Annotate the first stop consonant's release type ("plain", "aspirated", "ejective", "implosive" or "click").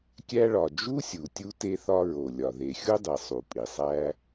plain